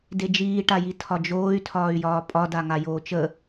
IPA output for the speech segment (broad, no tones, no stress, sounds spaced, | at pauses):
d e d͡ʒ iː ʈ a j i tʰ ɒ d͡ʒ oː y̯ tʰ ɒː y̯ j ɒː pʼ ɒ d a ŋ a j oː t͡ʃ ə